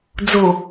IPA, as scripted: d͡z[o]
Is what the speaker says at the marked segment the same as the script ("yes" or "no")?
yes